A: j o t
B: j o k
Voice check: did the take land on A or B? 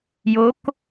B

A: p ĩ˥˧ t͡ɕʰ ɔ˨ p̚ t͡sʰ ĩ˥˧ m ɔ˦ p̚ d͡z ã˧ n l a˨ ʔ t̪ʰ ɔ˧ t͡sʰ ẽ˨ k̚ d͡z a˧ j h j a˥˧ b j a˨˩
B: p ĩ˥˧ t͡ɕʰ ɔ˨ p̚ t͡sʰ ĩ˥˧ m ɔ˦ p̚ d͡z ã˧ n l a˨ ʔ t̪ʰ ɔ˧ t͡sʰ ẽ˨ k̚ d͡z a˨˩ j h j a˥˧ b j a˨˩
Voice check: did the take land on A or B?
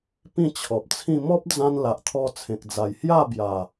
B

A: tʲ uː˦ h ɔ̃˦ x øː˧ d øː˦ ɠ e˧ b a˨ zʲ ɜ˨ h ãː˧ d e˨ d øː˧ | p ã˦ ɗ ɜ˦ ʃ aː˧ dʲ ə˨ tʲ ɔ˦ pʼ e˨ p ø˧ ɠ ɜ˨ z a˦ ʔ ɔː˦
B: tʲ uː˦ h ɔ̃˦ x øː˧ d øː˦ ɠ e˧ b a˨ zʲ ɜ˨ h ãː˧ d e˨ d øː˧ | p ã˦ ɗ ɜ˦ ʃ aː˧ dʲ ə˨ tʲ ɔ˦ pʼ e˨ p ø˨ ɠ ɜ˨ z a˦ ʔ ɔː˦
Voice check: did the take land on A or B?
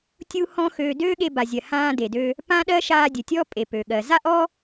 B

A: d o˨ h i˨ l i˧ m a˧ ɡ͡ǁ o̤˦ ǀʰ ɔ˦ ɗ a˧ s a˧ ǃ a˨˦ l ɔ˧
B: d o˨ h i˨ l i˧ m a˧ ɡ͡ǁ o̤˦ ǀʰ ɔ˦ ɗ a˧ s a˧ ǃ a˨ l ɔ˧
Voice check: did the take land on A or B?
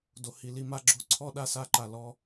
B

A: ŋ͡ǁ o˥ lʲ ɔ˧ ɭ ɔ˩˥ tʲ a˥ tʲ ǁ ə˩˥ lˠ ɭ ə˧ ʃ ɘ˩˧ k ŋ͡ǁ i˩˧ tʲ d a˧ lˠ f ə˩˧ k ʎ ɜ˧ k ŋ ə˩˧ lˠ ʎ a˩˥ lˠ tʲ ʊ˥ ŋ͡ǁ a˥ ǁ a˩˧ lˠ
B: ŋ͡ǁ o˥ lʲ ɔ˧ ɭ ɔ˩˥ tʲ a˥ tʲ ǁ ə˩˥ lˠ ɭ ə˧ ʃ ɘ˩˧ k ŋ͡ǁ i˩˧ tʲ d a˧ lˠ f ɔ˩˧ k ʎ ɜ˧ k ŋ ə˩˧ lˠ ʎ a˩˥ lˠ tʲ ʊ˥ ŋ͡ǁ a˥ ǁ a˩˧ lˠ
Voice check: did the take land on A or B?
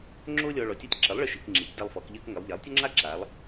B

